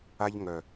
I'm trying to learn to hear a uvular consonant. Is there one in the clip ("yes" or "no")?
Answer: no